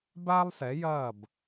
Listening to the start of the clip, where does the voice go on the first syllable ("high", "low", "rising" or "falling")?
high